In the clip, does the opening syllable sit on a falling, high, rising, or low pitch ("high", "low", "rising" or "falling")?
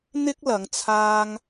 high